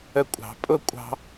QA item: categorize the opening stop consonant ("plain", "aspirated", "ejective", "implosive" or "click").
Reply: ejective